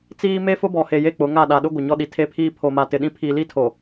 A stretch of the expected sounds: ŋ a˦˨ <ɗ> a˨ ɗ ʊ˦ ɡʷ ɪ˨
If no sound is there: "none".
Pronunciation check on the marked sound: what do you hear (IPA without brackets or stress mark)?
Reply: ɗ